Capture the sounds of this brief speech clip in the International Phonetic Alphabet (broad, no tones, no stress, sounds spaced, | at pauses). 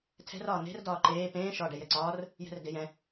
tʰ ɛ̤ r ɒː n̪ e̤ r d ɒː ǃ eː p ẽː ʃ ɒː ɖ ɛ j ɛ ǀ ɒː r | j ɛ̤ r d e j ɛ̃